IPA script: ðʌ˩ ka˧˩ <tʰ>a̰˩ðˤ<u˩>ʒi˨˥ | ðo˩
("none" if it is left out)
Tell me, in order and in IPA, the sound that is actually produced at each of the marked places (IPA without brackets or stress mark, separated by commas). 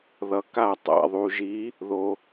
tˤ, u˩